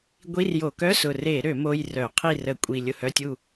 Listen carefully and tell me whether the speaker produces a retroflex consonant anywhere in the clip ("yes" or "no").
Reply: no